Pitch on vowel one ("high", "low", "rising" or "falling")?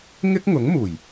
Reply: high